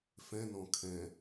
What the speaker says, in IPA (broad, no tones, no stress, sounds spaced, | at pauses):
f ɛ̃ n ɔ̃ kʰ ɛ̃